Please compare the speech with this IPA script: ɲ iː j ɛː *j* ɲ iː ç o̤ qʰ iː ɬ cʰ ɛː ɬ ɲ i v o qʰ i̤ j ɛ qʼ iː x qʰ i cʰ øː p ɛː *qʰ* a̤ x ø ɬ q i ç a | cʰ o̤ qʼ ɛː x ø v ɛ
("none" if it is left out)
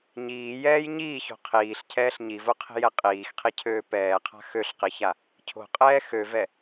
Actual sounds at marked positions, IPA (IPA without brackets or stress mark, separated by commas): j, qʰ